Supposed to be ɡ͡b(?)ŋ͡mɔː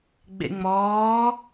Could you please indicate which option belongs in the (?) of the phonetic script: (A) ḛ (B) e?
A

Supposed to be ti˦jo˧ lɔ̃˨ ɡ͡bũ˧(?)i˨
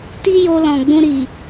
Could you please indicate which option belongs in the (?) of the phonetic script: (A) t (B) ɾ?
B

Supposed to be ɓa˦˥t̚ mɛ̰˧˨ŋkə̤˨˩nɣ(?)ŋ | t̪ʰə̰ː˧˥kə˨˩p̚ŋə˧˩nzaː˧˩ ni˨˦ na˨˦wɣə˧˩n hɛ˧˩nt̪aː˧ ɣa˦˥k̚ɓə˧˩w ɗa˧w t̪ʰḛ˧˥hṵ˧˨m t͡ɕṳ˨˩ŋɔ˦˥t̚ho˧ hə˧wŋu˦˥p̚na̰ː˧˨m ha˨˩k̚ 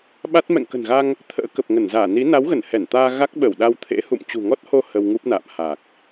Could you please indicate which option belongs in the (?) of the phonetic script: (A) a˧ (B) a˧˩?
A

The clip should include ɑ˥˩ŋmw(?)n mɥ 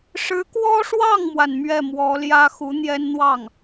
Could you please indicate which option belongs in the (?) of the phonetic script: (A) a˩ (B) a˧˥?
A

